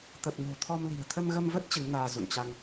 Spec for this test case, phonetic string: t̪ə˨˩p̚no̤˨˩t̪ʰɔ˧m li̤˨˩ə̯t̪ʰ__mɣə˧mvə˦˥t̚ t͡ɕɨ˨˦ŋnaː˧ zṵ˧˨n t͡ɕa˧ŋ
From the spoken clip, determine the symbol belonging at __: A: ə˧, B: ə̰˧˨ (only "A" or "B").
A